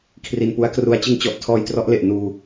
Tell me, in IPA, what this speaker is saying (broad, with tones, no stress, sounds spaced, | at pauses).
kʰ r i˧ n p u˦˥ a̯ k r u˧ a̯ t͡ɕ ɯ˧ ŋ t͡ɕ ɔ˨˩ ʔ tʰ ɔː˧ j t r ɔ˦˥ ʔ l e˨˩ ʔ n uː˧